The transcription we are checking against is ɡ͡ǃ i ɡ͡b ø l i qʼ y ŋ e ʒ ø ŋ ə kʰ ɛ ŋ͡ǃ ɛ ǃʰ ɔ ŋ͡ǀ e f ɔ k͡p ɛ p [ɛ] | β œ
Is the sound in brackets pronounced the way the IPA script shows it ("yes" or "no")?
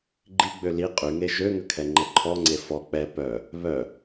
no